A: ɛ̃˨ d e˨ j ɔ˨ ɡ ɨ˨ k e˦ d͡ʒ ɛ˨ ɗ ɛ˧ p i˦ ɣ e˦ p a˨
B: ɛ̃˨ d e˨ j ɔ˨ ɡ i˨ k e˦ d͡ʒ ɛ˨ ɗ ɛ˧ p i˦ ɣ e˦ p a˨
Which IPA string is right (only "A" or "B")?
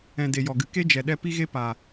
A